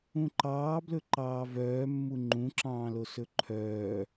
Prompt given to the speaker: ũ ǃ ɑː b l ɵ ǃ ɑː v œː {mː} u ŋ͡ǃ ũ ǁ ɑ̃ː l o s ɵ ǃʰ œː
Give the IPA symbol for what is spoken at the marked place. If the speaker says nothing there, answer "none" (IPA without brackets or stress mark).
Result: mː